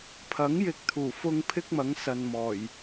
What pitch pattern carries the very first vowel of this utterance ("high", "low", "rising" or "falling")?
rising